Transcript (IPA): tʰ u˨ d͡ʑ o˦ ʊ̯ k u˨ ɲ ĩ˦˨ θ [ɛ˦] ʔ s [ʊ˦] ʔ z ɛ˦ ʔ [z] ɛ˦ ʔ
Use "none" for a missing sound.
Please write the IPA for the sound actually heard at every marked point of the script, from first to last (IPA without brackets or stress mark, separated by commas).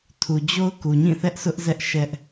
ɛ˦, ʊ˦, ʃ